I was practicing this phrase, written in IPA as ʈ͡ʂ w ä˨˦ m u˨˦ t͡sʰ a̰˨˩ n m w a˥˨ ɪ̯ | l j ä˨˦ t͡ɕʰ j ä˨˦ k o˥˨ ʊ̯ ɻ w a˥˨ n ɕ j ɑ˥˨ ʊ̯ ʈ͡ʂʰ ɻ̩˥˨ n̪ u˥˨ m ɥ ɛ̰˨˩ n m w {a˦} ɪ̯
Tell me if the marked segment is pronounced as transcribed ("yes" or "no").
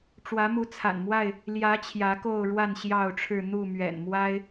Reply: yes